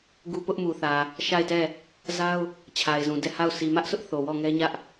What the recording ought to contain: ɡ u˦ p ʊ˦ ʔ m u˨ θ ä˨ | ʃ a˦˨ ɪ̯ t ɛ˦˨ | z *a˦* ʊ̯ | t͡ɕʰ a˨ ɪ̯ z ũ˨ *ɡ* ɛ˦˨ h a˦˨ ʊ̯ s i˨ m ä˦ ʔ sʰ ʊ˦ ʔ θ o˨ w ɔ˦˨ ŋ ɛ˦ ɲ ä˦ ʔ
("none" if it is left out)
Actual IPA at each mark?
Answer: a˦, d

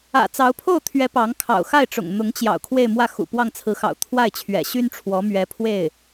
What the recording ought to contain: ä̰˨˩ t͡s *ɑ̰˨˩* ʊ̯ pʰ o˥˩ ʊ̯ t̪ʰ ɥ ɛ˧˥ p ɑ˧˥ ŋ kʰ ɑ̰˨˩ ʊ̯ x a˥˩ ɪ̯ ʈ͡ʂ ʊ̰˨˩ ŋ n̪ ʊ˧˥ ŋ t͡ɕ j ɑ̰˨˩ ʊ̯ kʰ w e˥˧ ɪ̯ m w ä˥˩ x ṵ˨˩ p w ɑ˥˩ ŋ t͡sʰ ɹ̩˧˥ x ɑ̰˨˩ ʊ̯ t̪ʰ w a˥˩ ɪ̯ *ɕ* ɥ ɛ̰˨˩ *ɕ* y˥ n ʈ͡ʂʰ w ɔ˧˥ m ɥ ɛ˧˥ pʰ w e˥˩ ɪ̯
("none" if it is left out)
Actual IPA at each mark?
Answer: ɑ˧˥, t͡ɕʰ, ɕ

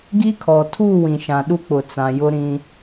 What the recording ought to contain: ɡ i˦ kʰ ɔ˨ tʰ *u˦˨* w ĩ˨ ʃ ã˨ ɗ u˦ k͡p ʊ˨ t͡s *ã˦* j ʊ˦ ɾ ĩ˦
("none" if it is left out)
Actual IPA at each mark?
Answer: u˦˨, ã˨

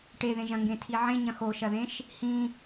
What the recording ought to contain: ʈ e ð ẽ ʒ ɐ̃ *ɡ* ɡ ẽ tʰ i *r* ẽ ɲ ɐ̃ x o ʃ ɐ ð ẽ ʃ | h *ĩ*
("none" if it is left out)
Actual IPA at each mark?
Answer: ŋ, ʕ, ĩ

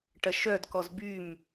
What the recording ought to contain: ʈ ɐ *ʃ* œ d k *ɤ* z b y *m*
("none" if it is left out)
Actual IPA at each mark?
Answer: ʃ, ɔ, m

